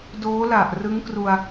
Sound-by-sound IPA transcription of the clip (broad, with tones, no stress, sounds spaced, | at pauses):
d oː˦˥ l a˨˩ ʔ r ɯ˦˥ ŋ k r u˧ a̯